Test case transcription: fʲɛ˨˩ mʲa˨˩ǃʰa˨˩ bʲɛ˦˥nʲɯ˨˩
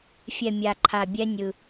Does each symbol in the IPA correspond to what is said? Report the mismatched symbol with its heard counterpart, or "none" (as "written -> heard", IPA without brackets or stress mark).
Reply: none